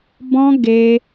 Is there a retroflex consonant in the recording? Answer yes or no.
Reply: no